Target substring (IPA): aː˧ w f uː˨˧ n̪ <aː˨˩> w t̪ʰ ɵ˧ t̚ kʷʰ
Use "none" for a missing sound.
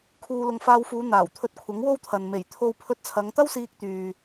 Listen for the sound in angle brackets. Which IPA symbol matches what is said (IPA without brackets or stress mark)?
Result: aː˨˩